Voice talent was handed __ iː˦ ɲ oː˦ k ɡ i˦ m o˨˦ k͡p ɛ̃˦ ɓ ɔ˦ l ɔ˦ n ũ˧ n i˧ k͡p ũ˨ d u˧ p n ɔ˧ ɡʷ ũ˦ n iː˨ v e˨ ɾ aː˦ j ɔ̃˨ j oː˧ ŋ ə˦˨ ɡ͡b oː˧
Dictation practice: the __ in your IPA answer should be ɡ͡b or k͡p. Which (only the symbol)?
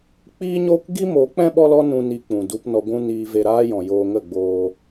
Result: k͡p